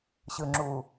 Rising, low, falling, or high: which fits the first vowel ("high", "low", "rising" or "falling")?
low